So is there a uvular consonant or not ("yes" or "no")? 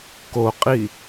yes